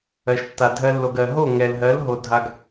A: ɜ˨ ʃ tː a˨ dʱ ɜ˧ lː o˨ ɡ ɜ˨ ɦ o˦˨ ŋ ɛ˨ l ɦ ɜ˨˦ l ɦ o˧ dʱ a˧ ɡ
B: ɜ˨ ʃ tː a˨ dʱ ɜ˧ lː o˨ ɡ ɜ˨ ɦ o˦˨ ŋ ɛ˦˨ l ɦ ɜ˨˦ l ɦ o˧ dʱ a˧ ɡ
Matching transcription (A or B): A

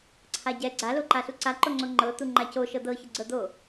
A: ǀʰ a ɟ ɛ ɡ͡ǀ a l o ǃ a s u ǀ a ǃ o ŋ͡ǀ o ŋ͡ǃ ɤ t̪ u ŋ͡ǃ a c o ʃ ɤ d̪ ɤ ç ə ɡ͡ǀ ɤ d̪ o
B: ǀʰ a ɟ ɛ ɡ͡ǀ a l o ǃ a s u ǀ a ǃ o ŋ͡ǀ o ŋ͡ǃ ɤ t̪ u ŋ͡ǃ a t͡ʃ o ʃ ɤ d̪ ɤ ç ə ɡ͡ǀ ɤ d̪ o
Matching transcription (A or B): A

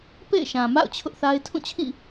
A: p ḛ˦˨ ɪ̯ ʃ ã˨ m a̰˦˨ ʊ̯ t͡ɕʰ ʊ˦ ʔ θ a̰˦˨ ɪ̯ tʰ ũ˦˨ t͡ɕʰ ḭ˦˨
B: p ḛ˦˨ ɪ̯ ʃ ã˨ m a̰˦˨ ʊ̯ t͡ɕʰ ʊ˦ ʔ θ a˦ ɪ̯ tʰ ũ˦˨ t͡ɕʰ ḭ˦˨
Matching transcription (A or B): B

